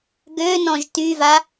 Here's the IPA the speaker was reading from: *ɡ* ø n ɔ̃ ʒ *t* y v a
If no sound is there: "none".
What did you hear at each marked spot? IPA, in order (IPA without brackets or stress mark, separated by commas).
ɡ, t